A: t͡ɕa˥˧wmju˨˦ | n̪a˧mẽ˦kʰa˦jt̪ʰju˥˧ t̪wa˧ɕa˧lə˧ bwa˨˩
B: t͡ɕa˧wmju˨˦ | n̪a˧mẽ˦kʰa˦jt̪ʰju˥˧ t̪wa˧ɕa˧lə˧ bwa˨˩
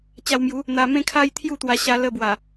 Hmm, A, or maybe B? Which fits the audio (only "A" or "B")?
B